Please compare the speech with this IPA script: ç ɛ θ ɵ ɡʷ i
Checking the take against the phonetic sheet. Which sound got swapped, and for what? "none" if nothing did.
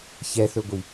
none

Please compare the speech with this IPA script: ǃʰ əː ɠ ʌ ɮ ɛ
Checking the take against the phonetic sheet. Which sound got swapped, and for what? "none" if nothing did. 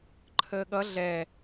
none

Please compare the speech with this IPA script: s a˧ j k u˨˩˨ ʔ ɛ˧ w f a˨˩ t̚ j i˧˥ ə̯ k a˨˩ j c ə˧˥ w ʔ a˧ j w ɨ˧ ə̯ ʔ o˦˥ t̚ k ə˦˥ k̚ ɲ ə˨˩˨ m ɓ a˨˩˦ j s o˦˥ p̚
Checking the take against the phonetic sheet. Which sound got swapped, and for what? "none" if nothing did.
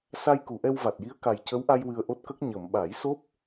f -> v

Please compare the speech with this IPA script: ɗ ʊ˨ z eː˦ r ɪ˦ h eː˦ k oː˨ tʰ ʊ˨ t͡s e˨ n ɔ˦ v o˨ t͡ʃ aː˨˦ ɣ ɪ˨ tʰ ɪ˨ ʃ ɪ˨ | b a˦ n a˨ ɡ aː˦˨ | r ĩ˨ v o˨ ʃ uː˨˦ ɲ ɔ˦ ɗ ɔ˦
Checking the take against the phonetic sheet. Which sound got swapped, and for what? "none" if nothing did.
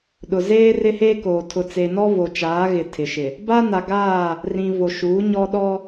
none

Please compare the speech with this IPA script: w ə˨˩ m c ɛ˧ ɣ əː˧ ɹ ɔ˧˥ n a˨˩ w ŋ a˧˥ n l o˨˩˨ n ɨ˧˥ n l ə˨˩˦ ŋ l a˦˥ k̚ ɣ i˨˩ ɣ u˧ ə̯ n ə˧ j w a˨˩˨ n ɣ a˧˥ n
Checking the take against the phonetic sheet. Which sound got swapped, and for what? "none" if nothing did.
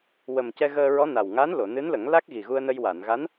none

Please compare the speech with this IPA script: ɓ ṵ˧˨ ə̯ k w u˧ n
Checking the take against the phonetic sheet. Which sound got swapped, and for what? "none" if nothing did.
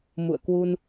ɓ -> m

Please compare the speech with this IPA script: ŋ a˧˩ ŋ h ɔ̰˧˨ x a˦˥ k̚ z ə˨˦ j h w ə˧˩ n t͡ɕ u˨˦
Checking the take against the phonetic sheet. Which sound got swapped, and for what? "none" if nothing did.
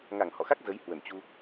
u˨˦ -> u˧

